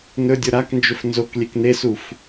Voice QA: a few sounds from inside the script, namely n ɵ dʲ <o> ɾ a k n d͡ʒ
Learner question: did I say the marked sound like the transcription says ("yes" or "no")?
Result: yes